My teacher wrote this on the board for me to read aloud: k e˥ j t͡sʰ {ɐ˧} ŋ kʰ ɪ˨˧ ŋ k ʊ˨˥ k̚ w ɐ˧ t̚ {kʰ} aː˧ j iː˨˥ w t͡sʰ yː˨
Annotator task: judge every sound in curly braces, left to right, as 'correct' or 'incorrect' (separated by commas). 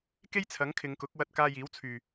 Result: incorrect, incorrect